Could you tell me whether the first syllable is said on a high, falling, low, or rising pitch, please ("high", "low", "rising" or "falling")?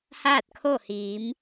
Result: falling